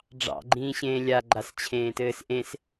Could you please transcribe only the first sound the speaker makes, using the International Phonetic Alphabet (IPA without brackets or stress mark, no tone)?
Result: ɖ͡ʐ